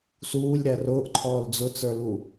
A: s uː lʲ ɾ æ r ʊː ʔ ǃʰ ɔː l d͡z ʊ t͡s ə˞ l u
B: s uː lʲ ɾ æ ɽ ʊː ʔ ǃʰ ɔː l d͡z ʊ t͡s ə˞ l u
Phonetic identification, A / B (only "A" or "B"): A